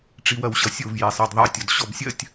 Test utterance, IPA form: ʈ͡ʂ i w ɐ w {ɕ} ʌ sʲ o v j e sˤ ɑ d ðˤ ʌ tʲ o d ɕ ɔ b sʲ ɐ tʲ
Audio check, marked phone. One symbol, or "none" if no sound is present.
ɕ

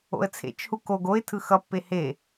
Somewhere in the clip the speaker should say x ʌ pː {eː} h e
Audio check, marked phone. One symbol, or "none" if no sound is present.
e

